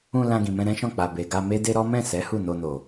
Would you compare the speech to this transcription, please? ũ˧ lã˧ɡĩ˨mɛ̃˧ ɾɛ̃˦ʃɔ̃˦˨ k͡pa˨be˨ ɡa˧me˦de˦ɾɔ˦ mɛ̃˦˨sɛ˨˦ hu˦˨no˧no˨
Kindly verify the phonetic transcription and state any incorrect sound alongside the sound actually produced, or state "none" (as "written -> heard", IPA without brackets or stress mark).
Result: none